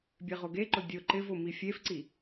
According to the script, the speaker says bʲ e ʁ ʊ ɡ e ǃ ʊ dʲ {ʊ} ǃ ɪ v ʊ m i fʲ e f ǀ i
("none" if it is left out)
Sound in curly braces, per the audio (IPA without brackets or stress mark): ʊ